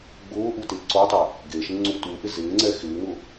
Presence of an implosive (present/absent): absent